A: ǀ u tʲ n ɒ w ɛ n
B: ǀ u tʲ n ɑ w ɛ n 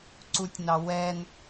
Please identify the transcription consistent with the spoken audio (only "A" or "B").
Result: B